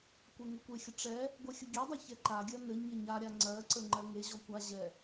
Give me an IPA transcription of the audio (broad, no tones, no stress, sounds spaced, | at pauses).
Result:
kʷ ɛ ŋ ə kʷ e xʲ ə ʈ͡ʂ ɛ | ɡʷ ɛ xʲ ə ɡʲ ɛ dˤ a ç ɛ ǃ a ɡʲ ɜ n ɘ ɲ ə ɲ a ɾʲ a ŋ͡ǀ ɜ ǀ ə ŋ͡ǃ ɜ ŋ e ʑ ɔ kʷ a ʑ ɛ